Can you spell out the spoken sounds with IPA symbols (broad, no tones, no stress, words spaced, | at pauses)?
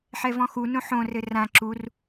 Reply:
ħɛvɔ̃xu nõħõ rɘrã ǁur